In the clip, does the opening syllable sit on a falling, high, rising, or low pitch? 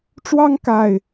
high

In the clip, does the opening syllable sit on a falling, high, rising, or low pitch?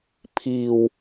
low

